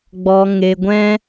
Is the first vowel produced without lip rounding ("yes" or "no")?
no